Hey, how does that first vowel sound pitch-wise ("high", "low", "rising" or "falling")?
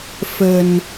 low